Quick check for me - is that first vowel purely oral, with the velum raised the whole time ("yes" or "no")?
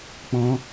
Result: no